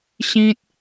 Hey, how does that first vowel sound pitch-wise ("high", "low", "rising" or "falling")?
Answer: high